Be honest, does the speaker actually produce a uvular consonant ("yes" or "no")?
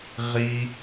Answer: yes